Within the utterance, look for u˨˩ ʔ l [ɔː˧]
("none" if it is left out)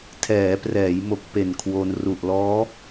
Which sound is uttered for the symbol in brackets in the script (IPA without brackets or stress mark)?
ɔː˦˥